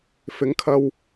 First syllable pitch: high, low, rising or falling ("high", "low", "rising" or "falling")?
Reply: rising